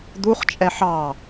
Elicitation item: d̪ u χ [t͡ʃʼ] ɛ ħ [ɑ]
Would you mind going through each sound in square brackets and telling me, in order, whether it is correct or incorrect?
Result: correct, correct

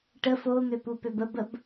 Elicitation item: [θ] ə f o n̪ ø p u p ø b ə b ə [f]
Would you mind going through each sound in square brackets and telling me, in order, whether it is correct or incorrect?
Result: incorrect, incorrect

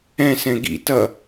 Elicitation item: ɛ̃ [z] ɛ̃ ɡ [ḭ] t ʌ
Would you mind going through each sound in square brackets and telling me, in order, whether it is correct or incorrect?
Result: incorrect, correct

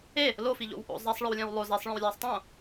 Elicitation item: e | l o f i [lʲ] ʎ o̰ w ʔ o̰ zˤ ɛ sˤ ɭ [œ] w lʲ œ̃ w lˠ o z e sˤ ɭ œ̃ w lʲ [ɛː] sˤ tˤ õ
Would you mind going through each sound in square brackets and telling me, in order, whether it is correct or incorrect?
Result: incorrect, correct, correct

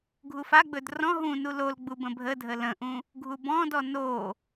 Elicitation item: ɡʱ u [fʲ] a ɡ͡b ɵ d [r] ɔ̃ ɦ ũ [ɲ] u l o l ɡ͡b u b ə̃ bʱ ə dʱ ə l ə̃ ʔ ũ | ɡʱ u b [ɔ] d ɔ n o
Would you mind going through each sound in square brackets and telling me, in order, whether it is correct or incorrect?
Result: incorrect, correct, incorrect, incorrect

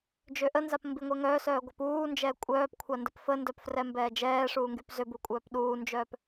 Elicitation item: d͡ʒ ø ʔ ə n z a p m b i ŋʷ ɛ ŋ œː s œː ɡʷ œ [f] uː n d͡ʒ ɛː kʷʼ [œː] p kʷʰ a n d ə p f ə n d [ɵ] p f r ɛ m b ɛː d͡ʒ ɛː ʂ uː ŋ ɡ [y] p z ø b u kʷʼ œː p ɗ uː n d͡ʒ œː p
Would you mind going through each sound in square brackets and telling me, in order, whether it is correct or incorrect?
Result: incorrect, correct, incorrect, correct

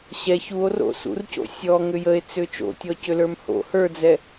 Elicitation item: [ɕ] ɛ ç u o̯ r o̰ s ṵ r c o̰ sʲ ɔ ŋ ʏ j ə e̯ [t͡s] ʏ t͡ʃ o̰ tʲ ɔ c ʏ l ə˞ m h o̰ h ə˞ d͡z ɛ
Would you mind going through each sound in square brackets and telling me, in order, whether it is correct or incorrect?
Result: correct, correct

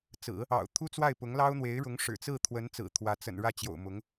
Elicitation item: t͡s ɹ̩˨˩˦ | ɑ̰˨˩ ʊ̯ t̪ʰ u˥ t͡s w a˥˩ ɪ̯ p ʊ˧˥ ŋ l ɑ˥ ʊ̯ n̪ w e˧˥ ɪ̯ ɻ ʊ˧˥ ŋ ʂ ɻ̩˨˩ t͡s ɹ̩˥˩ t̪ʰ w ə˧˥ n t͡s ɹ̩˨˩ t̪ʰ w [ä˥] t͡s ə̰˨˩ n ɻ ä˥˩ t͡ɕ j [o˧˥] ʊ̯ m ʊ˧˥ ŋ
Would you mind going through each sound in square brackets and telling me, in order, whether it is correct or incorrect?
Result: incorrect, incorrect

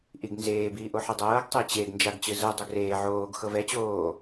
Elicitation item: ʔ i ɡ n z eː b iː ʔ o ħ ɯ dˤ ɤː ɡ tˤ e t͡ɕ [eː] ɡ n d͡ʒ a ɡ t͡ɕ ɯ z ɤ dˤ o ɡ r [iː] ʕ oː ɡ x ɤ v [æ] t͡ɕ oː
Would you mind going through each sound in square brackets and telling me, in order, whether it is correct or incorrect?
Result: incorrect, incorrect, incorrect

